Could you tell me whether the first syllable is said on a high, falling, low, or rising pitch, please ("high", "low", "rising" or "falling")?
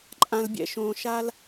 low